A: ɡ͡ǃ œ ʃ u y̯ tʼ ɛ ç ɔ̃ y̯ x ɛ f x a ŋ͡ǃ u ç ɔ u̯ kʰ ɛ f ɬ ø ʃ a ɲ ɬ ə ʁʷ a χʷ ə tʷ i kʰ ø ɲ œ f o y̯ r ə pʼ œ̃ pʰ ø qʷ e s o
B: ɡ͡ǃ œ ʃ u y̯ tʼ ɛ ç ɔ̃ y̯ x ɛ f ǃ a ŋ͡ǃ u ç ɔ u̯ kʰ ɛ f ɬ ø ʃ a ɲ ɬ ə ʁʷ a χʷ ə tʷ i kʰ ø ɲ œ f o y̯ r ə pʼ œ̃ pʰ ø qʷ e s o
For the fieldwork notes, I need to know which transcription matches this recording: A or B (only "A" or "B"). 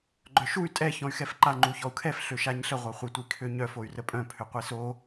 B